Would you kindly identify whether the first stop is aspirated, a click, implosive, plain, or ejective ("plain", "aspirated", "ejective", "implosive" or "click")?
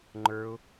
click